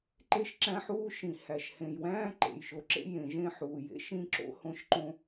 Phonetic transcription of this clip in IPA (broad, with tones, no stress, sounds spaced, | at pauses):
ǃ e˥ ʃ ǁ æ̃˥ ħ uː˥ ʃ ĩ˩ h æ˩ ʃ h ẽ˩ j w æ̃ː˥ ǃ ḛ˩ j ʃ o˩ ǁ ḛ˥ j ẽ˩ ʒ ẽ˥ ħ uː˩ j ḛ˥ ʃ ĩ˥ ǁ o̰˥ h õ˥ ʃ ǃ õ˥